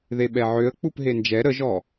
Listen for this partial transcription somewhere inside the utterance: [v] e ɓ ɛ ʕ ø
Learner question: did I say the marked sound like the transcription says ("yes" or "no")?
no